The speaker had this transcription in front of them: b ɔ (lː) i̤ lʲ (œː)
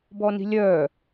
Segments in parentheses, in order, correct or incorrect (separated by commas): incorrect, correct